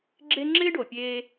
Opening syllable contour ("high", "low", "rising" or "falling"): high